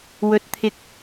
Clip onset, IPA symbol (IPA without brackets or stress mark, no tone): w